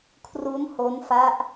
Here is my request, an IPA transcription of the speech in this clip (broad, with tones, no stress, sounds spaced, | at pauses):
kʰ r u˦˥ n h o˦˥ n f a˦˥ ʔ